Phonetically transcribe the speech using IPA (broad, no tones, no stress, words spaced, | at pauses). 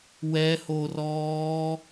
wɛhorɔː